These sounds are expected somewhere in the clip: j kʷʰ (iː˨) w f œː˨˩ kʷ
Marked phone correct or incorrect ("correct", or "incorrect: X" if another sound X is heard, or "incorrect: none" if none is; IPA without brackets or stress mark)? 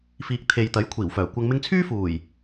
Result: incorrect: iː˨˩